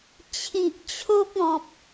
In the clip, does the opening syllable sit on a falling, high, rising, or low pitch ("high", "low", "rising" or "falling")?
low